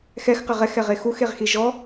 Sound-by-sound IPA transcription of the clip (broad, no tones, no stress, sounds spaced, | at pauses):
x ɛ x q ɪ ʁ ɛ x ɛ ʁ e x u x e ʁ x i ʒ ɔ